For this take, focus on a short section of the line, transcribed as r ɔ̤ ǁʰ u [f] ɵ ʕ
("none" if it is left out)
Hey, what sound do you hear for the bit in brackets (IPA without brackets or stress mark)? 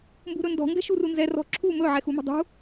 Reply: m